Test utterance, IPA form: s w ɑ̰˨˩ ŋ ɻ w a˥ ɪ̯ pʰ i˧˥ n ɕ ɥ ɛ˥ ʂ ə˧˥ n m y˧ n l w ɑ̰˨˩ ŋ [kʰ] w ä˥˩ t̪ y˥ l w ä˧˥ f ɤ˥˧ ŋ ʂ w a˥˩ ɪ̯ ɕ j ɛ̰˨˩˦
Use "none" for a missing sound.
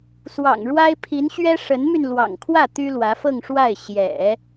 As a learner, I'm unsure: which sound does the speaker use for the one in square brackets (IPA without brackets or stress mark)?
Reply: kʰ